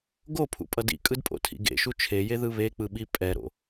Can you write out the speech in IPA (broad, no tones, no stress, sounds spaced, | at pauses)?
ɡ o pʰ ṵ pʼ ʌ d ḭ kʼ ɯ d pʼ o̰ tʰ ḭ ɡ ḛ ʃ u t͡ʃʰ e j e ð ɯ β e k͡p ɯ ɓ i pʼ ɛ ɾ o̰